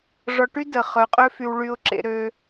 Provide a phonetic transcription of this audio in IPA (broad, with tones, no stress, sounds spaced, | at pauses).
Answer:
ʐ ɔ˨ ʈ y˥ d ə˩ χ œ˩ qʼ ø˦ f y˨ w ɭ y˨ ʊ̯ ǁ ḛ˨ ɾ ø˨